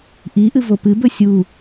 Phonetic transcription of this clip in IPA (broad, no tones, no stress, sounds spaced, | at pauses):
ʔ i ʔ ɨ v o p ɨ b ɵ sʲ u